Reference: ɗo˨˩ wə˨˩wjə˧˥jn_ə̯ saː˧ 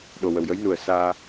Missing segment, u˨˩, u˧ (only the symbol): u˨˩